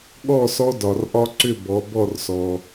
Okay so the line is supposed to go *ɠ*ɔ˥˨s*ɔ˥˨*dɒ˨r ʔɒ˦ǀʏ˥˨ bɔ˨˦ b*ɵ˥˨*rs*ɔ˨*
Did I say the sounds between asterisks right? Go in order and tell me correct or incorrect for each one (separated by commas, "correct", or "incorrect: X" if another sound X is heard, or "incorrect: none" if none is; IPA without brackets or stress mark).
correct, incorrect: ɔ˦, incorrect: ɔ˥˨, correct